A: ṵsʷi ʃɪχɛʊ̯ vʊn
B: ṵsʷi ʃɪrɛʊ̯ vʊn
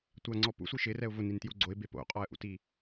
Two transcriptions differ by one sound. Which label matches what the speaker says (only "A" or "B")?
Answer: B